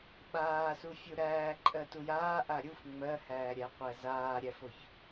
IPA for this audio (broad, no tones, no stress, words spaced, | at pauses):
ɓaːsufʲu ɾæː ǃʼɜtujaː ʔaɾʲuf ŋ͡mɜhæːɾʲæ qʷæzaːɾʲæfoç